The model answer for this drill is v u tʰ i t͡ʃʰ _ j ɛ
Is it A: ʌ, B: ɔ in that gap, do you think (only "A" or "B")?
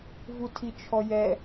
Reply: B